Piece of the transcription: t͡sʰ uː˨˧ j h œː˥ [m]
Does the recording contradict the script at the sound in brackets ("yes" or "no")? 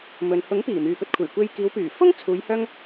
yes